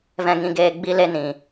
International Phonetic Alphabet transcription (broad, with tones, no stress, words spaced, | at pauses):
vɛ̃˧ŋĩ˧ɡeː˧ ɡ͡bi˦le˦ nĩ˧